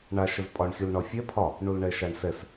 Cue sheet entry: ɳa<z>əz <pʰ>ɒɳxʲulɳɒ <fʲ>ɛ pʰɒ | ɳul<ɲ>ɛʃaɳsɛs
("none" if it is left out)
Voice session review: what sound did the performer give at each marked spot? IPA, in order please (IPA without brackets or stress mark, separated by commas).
ʃ, pʼ, fʲ, ɳ